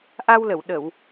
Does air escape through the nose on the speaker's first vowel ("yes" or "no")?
no